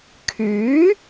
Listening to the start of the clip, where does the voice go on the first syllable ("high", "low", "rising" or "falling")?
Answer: rising